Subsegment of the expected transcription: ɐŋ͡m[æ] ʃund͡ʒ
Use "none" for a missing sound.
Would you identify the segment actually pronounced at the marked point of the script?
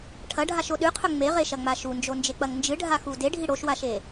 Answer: a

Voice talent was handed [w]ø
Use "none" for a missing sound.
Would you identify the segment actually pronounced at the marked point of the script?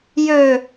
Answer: j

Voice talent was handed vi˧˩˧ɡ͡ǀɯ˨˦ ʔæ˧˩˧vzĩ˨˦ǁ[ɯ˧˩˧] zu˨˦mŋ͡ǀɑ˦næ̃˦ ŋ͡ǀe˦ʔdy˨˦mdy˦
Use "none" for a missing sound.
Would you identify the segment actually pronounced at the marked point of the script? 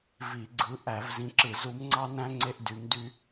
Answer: ɯ˧˩˧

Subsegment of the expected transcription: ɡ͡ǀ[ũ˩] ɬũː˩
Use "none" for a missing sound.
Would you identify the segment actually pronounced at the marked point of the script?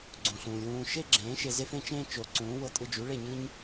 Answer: ũ˩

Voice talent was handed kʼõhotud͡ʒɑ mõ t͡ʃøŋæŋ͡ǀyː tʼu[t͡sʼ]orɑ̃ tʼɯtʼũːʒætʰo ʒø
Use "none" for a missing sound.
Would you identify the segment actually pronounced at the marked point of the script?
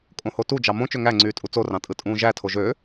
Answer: t͡s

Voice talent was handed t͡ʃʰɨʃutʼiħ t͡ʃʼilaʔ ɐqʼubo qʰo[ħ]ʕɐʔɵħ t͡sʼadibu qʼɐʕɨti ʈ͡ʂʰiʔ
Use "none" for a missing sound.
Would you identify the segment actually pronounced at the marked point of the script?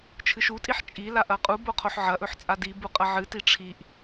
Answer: ħ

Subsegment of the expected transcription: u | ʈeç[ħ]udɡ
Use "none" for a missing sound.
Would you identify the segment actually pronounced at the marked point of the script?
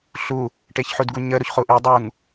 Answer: ħ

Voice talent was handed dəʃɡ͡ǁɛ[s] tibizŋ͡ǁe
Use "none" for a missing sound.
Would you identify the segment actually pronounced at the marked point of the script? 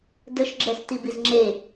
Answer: s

